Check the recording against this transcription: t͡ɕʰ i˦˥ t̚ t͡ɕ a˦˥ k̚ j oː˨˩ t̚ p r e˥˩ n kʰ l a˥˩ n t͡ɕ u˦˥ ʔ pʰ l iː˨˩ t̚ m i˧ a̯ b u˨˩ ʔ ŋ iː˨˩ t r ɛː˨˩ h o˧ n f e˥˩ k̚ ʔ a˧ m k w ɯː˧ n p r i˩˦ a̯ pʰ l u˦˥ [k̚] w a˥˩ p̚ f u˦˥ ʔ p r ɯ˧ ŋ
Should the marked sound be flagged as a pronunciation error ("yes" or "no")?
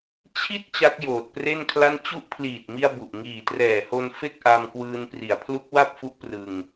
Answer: no